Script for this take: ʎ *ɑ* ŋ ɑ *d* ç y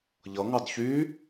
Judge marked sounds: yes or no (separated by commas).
no, yes